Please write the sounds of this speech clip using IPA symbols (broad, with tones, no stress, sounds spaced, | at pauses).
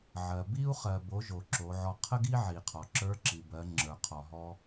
ʕ ɜ˩ b i˧ u̯ χ ɜ˩ b o˩˧ ʒ o˩ ǁ o˩˧ ʕ ɔ˧ qʰ ə˥ ɡ i˥ ʕ i˩ qʰ ɔ˩ ǁ ə˞˧˥ ǁ i˩ b ɜ˩˧ ŋ͡ǁ ə˞˩ qʰ ɔ˩ ɦ ɔ˧